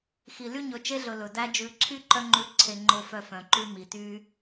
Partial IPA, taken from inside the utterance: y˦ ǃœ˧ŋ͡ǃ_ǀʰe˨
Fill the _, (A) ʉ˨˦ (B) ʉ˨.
A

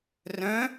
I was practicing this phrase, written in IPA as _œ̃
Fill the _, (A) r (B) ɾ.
A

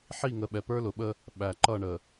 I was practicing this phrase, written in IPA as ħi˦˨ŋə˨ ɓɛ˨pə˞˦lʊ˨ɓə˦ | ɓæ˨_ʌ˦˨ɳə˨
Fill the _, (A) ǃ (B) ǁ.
A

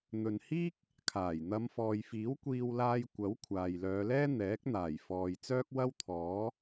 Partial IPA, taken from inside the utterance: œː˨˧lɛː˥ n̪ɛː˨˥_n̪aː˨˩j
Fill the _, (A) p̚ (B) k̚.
B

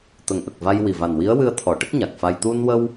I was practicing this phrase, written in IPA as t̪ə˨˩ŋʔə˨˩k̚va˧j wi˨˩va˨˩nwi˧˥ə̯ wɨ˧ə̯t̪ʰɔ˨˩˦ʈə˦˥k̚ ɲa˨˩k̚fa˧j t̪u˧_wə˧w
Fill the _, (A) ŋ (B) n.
B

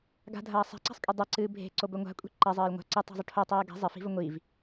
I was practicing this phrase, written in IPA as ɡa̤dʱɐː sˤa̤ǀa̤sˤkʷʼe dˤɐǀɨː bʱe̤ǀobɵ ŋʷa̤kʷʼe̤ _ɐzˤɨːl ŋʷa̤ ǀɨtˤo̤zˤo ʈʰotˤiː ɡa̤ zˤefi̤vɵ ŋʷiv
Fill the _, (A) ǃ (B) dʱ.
A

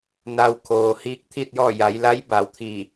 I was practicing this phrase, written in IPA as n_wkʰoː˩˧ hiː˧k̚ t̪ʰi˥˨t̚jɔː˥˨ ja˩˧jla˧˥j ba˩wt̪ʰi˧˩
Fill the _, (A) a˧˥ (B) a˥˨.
A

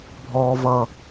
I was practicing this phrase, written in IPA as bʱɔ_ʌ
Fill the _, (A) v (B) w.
A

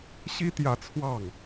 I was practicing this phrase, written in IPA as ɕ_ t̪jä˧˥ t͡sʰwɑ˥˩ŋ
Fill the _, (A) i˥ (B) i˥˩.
A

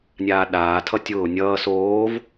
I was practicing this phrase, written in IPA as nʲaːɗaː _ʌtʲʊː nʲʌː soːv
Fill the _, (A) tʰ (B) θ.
A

